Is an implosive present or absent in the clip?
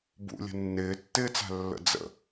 absent